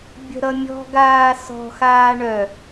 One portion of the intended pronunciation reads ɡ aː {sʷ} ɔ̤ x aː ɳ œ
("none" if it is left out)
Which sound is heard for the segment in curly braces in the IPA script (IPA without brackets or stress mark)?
s